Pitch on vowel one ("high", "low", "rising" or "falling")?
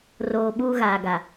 low